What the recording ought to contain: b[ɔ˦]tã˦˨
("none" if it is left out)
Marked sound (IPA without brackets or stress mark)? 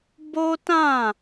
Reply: o˦